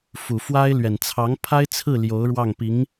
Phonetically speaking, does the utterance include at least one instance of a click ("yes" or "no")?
no